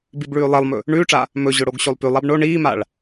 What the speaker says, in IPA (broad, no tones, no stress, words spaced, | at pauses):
bibɭʉːlˠelˠmɵ | ɳʉːʈ͡ʂa | mɵ ʑɵɽoɡɕolˠpʉlˠ abɳo ɳiːmaɭ